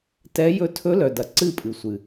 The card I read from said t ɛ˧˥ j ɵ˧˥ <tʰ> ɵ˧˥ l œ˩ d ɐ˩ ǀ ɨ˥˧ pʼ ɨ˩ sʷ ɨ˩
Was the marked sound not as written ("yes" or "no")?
no